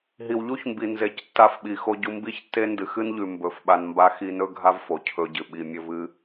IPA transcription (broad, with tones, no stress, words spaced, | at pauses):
ɦi˨wʎu˦çmbi˨ nze˨˦c tːa˧fɓi˨xo˧ ɟu˧ mbi˦çtːe˦ ndɨ˨xɨ˦nʎʉ˨ mbɵ˨˦fɓa˧nmba˦ xi˧nɵ˦ ɡʱa˦vfo˨ cʰɵ˧ɟɨ˨ ɓi˨ mʲɵ˨ vɨ˦